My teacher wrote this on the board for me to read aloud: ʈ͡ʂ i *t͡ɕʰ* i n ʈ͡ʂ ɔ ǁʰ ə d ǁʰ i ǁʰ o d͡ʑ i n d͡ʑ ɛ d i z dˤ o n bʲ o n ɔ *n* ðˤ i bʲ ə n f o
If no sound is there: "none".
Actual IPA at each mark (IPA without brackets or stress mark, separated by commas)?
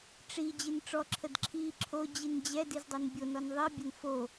d͡ʑ, n